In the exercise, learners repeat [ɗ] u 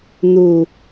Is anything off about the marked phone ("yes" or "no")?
yes